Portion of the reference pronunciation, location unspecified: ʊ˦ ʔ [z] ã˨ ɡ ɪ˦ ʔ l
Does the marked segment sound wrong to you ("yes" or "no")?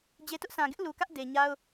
yes